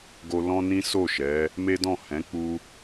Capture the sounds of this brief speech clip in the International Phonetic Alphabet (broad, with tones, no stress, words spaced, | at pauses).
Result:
ɡo˧lɔ̃˦nĩ˦ so˦˨ʃɛ˨˦ | me˦dɔ̃˦˨ hɛ̃˨˦ k͡pu˦